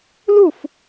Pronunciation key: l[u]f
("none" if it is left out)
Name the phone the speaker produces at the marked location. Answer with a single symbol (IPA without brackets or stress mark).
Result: u